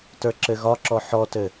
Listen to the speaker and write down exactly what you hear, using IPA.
t ə˞ ǁ ɘ ɣ ɒ ǁ ɔ ħ ɔ t ɘ

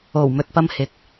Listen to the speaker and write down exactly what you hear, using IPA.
o˨˩ w m ɵ˨ t̚ p ɐ˧ m h ɪ˨ k̚

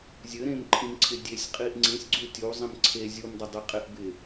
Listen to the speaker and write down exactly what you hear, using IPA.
zʲ ɘ ɾ ẽ m ǃʰ ĩ m ǀʰ ɪ dʲ e sʲ qʼ i ʔ ŋ͡ǀ ĩ sʲ ɡ͡ǀ u tʲ u zˤ ĩ m ǀʰ e zʲ u m dˤ ɘ dˤ i qʼ ɪ ʔ b ɪ

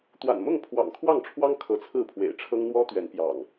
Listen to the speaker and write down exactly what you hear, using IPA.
t̪ w a̰˨˩ n m ʊ˥˨ ŋ pʰ w ɑ̰˨˩ ŋ kʰ w ɑ˥˨ ŋ ʈ͡ʂʰ w ɑ˦ ŋ kʰ ɤ˨˦ t͡sʰ ɹ̩˥˨ pʰ w ḛ˨˩ ɪ̯ ʈ͡ʂʰ ɤ˦ ŋ n̪ w ɔ˦ t̪ ɥ ɛ˨˦ n p j ɑ̰˨˩ ŋ

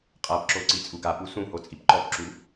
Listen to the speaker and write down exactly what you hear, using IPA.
qʼ a p ǁ o ǀ i t͡sʼ u ɡ a p u s ũ h o t͡sʼ i p ǃ ɔ p ǁ u

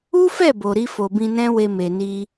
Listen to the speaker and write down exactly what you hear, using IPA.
u˦ f ɛ˦˨ b o˨ ɾ i˧ f o˨ b ĩ˧ n ɛ̃˦ w e˧ m e˨ n i˧

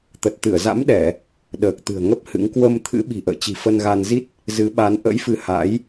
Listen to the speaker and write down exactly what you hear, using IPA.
t̪ ə˨˩ t̚ t̪ ɨ˧˩ ə̯ z a̰˧˥ m ɗ ɛ˧˩˨ | ɗ əː˨˩ k̚ t̪ ɨ̤˨˩ ə̯ ŋ ə˦˥ p̚ h ɨ̰˧˥ ŋ k w ə˧ m t̪ʰ ɨ̰˧˥ ɓ i̤˨˩ ʔ ə̰ː˧˨ t͡ɕ i̤˨˩ f ə˧ n ɣ a˧ n z i˦˥ t̚ | z ɨ˨˦ ɓ a˨˦ n ʔ ə̰˧˥ j f ɨ˨˦ h a̰˧˥ j

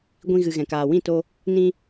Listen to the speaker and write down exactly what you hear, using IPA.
ɡʷ ĩ˧ ɣ ɨ˨ ɣ ɛ̃˨ k aː˨ w ĩ˦˨ t o˧ | n ĩ˧

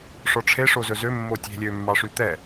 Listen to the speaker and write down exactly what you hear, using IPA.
ʂ ɔ ʈ͡ʂʰ e ʂ o z ɵ z ø mː o tʲ e̤ lʲ ø mː ɑ ʂ y t̪ ɛ

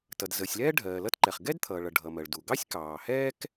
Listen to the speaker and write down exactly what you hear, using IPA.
t ʌ˩ d z əː˩ sʲ l ɛː˥ ɖʱ ɜː˩ l ʌ˥ t ǃ ɛ˩ χ ɡ ɛ˥ d t̪ʰ ʌː˩ ɭ ʌ˩ ɖʱ ʌ˩ m ɜ˩ ɭ d u˩ ɡ ɑ˥ sʲ k ɑː˩ h ɛː˥ k

